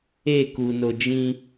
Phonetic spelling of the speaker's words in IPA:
e kuno d͡ʒĩ

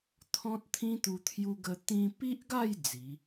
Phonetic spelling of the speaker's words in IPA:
t̪ʰɔ̃˦t̚t̪ʰĩ˦t̪u˧ t̪ʰju˧ɡə˧ t̪ĩ˧pi˦ʔɡa˥˧j d͡zi˨˦

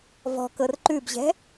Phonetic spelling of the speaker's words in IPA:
vɔ̤kɤr ǃʉbʑɛ̤

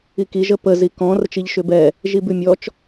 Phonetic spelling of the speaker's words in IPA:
iki ʒəpə zikɔ̃ rət͡ʃiʎʃʏbɛ | ʒibʉmʲɔt͡ʃ

